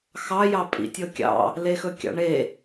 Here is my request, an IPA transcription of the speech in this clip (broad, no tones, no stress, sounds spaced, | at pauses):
x ɑ j ɑ pʼ ḭ tʲ ɤ kʲ ɑ̰ | l e x ɵ kʲ ɑ̰ ɳ e